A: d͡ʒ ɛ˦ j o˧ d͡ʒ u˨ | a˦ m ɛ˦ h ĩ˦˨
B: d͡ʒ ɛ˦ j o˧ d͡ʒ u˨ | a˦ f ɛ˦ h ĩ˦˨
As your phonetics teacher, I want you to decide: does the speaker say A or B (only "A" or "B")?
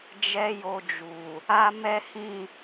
A